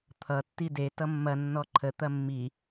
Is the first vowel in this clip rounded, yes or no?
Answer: no